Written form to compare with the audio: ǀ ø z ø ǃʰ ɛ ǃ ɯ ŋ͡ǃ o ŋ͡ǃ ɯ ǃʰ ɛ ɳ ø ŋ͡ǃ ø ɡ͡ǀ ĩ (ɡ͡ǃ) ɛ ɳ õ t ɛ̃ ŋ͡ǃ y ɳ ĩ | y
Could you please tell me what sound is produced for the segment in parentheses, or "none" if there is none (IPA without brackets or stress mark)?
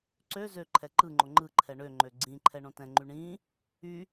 ǃʰ